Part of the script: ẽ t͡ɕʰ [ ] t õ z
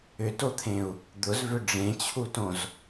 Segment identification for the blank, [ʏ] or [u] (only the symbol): u